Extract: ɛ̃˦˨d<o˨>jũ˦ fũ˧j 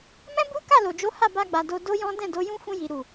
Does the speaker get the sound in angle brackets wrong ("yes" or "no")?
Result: yes